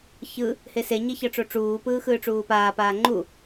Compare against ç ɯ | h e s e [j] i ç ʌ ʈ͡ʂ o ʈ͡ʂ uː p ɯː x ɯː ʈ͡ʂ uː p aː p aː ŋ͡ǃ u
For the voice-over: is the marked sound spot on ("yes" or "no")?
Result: no